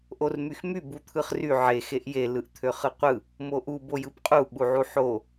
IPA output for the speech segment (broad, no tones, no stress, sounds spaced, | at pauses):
ʔ o r m y x m y b u t̪ʰ ɯ χ r y ʕ e x e ʔ j e l ɯ ʔ t̪ʰ ø χ ɯ qʷ ɯ | m o ʔ u b o j ɯ p qʼ u ɓ u ʕ u ħ o